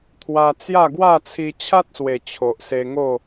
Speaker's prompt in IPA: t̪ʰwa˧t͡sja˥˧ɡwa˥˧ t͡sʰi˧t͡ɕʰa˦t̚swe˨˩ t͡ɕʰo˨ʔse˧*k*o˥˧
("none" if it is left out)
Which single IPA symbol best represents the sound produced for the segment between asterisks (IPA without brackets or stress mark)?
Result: ŋ